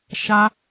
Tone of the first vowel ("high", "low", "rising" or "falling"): high